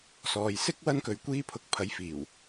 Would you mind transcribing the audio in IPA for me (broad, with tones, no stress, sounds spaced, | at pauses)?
s ɔː˨ j s ɪ˥ k̚ w ɐ˥ n k ɵ˨ ɥ kʷ iː˧ pʰ ʊ˨˥ k̚ pʰ ɐ˨˥ j f iː˨˩ w